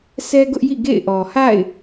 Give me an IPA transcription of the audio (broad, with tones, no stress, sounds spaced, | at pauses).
sʰ ɛ˦ ɡ ʊ˦ ʔ j ḭ˦˨ ɡ ḛ˦˨ ɪ̯ ʔ ɔ˨ h a̰˦˨ ɪ̯